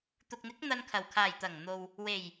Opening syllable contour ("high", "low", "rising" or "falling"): low